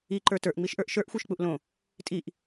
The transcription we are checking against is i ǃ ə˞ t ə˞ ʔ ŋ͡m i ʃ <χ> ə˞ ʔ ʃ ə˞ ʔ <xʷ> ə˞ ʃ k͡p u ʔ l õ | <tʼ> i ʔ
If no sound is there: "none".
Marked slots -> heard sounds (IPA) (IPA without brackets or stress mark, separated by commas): ʔ, xʷ, tʼ